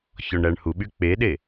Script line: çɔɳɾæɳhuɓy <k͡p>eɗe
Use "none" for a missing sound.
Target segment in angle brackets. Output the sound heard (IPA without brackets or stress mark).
k͡p